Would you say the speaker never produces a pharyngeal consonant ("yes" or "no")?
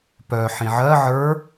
no